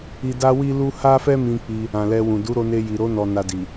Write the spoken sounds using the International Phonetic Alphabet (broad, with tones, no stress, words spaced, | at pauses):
i˧da˦wi˦lu˦ ha˦fɛ˦mĩ˧ k͡pi˧ | ã˨lɛ˧wũ˨ du˨˦ɾo˧ne˧ji˨ ɾo˨˦ nɔ˧na˧di˨